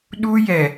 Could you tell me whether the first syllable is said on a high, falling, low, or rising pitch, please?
high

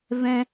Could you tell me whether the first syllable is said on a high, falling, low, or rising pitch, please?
high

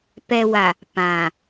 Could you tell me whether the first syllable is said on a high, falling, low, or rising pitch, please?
low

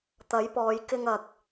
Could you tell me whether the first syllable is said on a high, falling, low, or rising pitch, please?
rising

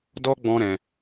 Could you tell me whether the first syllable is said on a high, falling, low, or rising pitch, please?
high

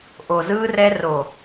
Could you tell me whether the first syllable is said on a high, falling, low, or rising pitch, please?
low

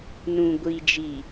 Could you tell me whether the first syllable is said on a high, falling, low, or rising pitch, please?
low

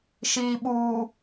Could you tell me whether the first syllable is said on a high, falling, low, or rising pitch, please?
low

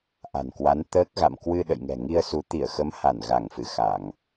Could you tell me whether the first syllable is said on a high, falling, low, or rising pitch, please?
low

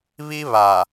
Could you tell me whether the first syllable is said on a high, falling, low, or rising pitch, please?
high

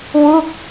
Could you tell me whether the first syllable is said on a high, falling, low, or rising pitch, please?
falling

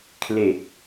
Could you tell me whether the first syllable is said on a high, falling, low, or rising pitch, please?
low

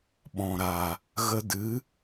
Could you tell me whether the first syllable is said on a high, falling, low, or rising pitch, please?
low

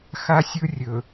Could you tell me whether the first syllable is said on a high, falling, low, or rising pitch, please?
high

